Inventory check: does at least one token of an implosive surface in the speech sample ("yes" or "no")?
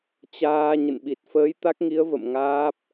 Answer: yes